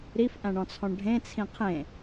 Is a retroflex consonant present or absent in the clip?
present